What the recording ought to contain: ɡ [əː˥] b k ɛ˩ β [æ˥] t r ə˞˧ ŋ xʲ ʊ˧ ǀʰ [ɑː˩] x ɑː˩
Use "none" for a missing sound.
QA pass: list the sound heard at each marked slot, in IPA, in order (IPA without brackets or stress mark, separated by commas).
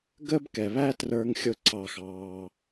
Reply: əː˥, æ˥, ɑː˩